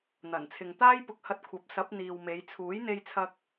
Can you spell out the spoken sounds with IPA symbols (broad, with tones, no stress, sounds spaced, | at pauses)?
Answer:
n̪ ɐ˨˩ n t͡sʰ ɪ˨ ŋ t̪ aː˥ j p ʊ˧ k̚ h ɐ˧ t̚ kʷʰ ɐ˨˥ p̚ s ɐ˨˥ p̚ n̪ iː˨ w m e˨˧ j t͡sʰ uː˨˥ j n̪ e˧ j t͡sʰ ɐ˧ k̚